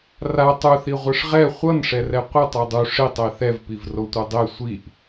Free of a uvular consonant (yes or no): no